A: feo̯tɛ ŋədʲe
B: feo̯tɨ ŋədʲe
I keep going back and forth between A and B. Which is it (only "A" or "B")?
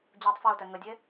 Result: A